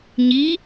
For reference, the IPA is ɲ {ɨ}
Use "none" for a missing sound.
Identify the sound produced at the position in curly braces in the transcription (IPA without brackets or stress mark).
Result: i